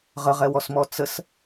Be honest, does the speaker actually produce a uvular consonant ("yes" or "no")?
yes